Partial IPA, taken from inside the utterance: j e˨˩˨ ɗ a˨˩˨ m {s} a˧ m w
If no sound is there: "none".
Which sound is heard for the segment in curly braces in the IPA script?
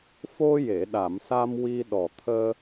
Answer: s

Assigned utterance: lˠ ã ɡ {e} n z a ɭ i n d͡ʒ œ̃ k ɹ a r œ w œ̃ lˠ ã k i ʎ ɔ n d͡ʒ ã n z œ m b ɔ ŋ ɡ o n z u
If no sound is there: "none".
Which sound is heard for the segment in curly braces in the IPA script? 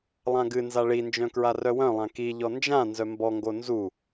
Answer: ɨ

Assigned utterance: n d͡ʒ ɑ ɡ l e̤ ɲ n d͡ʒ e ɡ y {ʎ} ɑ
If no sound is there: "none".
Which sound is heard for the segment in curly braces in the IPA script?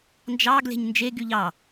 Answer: ʎ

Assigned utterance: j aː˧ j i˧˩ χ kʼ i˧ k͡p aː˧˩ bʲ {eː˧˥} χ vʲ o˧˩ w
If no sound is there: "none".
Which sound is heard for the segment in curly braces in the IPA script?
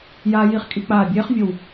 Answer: eː˧˥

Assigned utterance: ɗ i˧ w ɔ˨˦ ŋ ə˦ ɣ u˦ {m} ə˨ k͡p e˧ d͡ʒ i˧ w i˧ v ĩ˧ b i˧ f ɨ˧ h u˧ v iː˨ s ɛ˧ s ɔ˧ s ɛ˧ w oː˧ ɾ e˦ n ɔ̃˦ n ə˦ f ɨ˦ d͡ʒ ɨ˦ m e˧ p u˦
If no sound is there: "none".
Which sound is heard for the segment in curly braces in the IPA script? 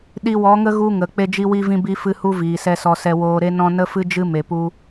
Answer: ŋ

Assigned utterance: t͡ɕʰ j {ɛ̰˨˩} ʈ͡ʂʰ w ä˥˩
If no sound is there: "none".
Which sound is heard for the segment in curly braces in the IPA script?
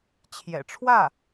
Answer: ɛ̰˨˩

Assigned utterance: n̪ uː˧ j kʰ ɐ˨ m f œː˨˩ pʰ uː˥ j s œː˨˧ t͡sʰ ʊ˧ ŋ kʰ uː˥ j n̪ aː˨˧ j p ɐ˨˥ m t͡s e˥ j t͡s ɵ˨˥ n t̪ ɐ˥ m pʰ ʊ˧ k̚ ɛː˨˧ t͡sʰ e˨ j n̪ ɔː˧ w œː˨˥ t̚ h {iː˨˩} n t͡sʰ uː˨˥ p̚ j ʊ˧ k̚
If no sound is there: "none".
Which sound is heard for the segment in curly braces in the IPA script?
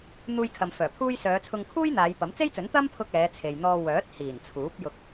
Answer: iː˨˩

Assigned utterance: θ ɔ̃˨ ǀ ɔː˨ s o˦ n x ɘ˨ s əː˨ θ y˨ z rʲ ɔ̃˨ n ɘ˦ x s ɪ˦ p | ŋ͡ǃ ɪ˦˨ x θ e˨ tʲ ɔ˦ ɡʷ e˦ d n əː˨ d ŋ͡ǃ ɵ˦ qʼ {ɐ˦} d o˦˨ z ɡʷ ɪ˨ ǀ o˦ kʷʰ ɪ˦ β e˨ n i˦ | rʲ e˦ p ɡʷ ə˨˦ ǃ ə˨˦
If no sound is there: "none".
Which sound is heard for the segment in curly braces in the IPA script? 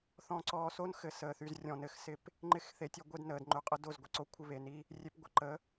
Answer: ə˦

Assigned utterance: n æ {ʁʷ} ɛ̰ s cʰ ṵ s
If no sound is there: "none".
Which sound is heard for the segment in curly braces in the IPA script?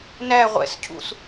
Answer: ʁʷ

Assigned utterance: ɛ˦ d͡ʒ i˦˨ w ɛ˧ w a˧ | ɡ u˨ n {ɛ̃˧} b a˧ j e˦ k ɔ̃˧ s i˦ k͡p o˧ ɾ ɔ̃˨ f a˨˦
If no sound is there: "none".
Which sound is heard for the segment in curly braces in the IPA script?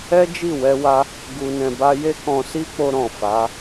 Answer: ɛ̃˨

